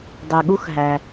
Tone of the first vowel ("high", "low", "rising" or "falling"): low